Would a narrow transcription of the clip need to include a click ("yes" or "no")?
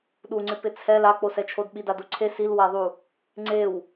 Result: yes